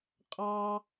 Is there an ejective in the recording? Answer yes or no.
yes